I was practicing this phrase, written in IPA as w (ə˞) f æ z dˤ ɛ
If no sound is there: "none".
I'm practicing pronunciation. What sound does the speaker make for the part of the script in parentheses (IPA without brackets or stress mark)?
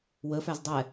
ə